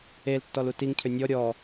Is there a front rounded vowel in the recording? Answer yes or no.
yes